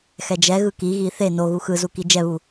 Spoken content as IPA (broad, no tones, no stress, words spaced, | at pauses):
xɛd͡ʒɛɣɯ kiɣi θe no ɣuxɯzu kid͡ʒɛβu